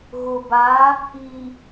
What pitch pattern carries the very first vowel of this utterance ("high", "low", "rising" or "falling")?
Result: low